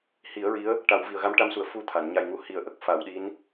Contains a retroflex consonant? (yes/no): yes